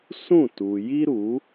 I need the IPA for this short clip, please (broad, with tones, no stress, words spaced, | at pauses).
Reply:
sũ˦˨tu˨ji˦ɾu˨˦